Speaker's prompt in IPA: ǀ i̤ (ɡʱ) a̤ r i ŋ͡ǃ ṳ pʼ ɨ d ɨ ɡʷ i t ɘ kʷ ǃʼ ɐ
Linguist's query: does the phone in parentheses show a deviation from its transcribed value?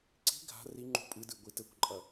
no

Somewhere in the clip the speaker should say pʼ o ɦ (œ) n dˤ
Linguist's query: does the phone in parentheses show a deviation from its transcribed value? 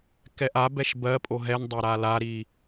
yes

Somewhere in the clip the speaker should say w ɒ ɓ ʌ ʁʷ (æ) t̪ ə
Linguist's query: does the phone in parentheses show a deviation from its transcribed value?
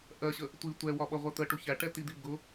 yes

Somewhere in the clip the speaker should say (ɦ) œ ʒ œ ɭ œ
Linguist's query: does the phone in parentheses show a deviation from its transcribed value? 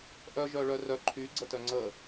yes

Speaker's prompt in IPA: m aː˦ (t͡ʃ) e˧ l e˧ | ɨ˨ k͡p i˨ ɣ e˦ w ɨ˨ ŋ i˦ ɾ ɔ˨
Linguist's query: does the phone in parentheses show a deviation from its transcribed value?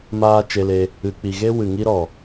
no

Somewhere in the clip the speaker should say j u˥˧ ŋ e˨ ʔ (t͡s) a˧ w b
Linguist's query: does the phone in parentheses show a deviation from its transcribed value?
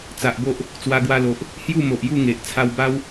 yes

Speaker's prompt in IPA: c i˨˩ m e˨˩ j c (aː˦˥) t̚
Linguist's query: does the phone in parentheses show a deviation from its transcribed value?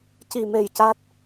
yes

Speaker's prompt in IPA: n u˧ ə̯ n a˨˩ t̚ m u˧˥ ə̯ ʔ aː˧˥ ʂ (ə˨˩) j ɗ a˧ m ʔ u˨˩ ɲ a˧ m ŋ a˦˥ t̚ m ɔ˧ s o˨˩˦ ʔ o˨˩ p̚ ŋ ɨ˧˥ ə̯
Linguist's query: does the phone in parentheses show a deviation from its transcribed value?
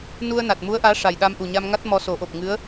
yes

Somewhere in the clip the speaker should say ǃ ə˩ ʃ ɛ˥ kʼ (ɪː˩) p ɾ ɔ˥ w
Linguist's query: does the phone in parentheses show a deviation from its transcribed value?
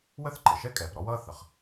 yes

